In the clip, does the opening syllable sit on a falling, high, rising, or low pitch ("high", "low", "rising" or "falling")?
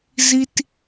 low